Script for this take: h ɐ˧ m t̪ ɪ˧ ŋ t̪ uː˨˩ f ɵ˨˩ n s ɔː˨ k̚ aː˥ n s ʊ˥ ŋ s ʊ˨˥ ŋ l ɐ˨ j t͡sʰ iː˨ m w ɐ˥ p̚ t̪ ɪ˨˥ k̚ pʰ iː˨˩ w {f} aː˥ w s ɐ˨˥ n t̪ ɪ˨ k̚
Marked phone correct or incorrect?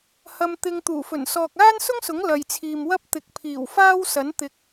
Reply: correct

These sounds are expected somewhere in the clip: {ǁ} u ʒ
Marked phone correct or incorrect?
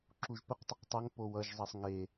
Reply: correct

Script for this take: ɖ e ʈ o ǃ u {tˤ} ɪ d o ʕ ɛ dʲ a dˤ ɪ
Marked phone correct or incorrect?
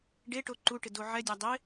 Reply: incorrect: ʈ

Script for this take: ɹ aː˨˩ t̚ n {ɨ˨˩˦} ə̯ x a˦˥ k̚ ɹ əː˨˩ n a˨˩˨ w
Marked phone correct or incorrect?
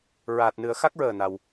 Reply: correct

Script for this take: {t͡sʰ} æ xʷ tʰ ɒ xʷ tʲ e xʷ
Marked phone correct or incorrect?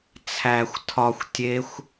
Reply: correct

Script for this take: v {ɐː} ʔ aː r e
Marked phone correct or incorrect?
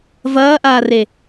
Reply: correct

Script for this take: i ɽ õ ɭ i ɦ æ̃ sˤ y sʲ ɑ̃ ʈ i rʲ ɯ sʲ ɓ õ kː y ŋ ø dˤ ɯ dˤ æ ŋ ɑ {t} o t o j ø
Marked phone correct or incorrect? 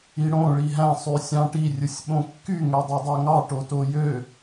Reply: incorrect: ʈ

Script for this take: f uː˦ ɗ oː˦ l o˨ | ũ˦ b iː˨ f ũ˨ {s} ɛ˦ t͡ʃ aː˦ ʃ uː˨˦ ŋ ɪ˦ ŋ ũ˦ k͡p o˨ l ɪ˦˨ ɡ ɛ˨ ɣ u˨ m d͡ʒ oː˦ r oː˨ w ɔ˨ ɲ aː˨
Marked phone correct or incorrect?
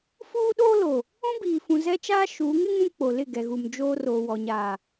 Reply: incorrect: z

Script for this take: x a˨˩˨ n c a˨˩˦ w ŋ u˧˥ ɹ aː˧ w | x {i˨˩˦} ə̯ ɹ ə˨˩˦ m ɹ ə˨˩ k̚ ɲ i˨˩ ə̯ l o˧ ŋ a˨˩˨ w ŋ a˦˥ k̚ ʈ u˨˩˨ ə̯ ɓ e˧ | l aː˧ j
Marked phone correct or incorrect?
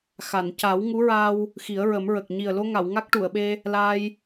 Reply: correct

